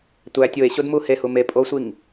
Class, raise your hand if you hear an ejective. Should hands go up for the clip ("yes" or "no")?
yes